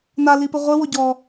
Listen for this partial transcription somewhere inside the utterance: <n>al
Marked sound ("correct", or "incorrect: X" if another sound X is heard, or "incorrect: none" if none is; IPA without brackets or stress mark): correct